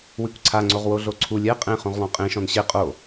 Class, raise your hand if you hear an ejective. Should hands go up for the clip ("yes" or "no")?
yes